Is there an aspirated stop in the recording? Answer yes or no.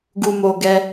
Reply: no